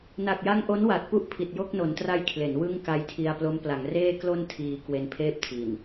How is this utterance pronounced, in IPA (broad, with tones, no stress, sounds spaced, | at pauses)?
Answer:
n a˨˩ k̚ j a˦˥ ŋ ʔ o˦˥ n w a˨˩ t̚ p u˦˥ ʔ pʰ i˨˩ t̚ j o˥˩ k̚ n o˩˦ n t r a˧ j kʰ l e˩˦ n w ɯ˥˩ ŋ k a˧ j tʰ i˧ a̯ p l o˦˥ m p l a˩˦ ŋ r eː˥˩ k l o˧ n tʰ iː˧ k w e˧ n pʰ eː˥˩ p̚ tʰ i˨˩ n